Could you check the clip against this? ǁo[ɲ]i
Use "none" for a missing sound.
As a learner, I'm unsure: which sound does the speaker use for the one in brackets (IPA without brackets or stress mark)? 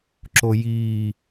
j